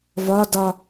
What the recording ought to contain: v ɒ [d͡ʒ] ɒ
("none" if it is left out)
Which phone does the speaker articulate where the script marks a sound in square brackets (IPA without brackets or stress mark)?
d